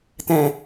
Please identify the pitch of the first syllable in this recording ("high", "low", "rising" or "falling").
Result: low